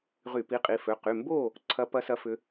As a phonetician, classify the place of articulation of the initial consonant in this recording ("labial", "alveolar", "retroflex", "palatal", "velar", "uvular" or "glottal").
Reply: uvular